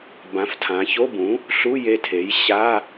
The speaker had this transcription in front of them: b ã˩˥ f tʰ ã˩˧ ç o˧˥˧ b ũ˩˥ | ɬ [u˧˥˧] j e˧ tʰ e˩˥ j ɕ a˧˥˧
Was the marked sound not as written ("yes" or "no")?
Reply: no